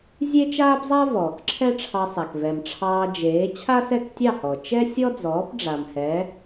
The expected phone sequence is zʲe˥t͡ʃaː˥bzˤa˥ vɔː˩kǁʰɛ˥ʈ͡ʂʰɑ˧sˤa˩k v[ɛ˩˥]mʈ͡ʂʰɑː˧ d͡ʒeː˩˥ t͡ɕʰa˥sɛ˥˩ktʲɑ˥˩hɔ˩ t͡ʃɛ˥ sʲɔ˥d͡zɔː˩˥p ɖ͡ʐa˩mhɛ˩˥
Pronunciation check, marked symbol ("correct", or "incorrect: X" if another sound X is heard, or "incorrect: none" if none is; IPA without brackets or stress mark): incorrect: ɛ˩